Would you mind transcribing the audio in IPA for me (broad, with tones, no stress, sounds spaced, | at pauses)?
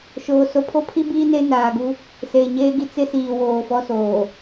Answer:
ʃ oː˨ s o˨ pʰ o˦ pʰ i˦ b iː˦ n e˦ n aː˨ ɡ u˦ | s eː˨ ɲ eː˦ ɡ i˦ t͡s ɪ˦ s iː˨ w oː˨ f ɔ˦ s oː˨